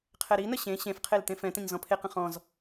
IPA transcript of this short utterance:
qʰ ɛ ɾ i n ə ɕ ẽ ɕ ẽ f qʰ e l t ẽ f ɛ̃ t ə̃ ɲ z ɔ̃ pʰ e q ə̃ χ ɔ̃ z

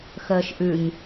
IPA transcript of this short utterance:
x əː ʃ ʔ ʉ ɲ

